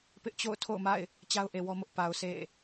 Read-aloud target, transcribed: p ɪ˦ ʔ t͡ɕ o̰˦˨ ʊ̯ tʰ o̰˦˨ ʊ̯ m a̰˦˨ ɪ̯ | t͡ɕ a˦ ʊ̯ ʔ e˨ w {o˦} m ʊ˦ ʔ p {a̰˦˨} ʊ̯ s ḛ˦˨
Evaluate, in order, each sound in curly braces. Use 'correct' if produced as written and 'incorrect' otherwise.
incorrect: ɔ˦, incorrect: a˨

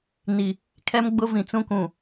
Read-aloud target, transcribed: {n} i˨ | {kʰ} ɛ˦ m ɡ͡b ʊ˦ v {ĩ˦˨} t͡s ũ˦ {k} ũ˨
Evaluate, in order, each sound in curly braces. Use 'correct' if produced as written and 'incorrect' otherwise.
correct, correct, incorrect: ĩ˨, correct

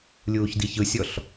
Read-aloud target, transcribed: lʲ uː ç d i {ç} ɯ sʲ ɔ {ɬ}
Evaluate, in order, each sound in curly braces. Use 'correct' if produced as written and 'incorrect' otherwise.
correct, correct

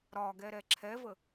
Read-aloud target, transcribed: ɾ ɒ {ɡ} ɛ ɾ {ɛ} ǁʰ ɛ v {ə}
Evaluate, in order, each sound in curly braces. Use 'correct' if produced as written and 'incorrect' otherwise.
correct, correct, correct

